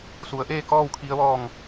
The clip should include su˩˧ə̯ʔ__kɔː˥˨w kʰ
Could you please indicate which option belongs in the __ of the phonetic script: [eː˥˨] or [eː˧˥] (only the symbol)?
eː˥˨